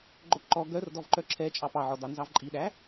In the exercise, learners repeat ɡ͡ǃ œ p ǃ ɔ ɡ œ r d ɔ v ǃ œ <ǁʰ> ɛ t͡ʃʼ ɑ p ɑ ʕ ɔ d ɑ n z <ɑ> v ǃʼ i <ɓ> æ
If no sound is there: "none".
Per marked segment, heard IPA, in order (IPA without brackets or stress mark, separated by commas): ǁʰ, ɑ, ɗ